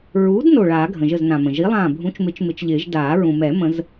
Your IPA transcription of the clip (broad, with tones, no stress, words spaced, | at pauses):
ɹuː˨˥d no˧˩ɭaː˨˩˦ ɡʱə̃˩ʒə˧˩znã˩ mə̃˩ ʒi˨˥lˠãː˧˩ bʱũ˨˥t͡ʃmɪ˨˥t͡ʃ mɪ˨˥t͡ʃʎɪː˨˩˦ʒ daː˨˩˦ ɹũ˩mɛ˨˩˦mə̃˨˩˦z